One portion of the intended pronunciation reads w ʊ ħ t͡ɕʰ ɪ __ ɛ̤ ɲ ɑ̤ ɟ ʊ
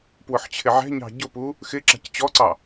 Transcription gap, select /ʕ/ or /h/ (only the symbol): ʕ